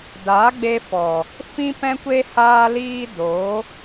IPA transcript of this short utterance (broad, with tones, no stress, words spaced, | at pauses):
daː˨˦ɡ͡be˧fɔ˨ | fĩ˦pɛ̃˦kʷe˦ haː˧liː˧ do˨˦